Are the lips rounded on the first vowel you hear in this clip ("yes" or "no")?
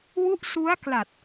yes